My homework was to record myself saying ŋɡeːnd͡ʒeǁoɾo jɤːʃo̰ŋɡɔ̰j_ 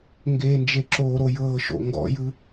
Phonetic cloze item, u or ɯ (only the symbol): ɯ